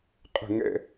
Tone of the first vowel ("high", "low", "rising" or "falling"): falling